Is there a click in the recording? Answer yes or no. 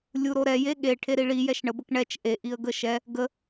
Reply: no